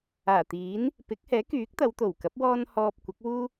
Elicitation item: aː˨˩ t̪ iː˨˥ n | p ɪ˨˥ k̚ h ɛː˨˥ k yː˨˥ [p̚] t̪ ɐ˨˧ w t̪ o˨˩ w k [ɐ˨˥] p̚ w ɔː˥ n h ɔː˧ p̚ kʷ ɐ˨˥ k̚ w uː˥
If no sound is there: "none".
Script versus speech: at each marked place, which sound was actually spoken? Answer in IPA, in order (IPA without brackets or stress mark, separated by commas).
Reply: k̚, ɐ˨˥